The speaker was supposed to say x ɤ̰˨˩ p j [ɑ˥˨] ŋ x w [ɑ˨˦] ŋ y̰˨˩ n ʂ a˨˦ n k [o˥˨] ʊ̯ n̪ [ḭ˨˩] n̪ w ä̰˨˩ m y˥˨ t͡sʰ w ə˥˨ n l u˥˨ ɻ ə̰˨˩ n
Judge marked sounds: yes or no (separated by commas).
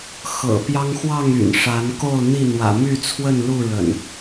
no, no, yes, no